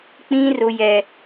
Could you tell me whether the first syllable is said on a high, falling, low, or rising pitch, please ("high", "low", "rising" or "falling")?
high